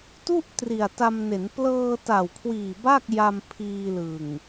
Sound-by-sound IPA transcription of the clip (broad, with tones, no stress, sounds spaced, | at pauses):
t u˥˩ ʔ t r i˨˩ a̯ t a˧ m n e˩˦ n p l ɤː˧ t a˨˩ w kʰ w iː˨˩ b a˥˩ k̚ j a˧ m pʰ iː˧ l ɯ˨˩ ŋ